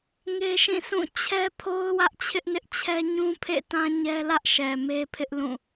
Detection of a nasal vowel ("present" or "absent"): present